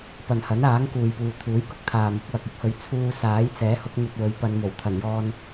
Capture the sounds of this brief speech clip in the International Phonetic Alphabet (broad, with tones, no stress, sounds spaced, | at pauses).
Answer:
p ɐ˨ n h ɐ˨˥ n aː˨˥ ŋ k uː˨ j p uː˨ t̪ʰ uː˨˥ j k ʊ˥ k̚ t̪ʰ aː˨ m ʊ˨˥ k̚ w ɐ˨ k̚ ɪ˥ k̚ h ɵ˨˧ ɥ t͡sʰ uː˧ s aː˨˥ j t͡s ɛː˨˥ h ʊ˨˥ k̚ n̪ ɵ˧ t̚ w ɵ˨˥ ɥ p ɐ˨˧ n m o˨˩ w t̪ʰ ɐ˨˩ n j ɔː˧ n